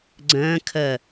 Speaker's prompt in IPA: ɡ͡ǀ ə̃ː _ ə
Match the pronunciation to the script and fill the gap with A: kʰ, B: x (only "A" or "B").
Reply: A